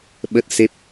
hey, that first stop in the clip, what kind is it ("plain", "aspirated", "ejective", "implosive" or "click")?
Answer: implosive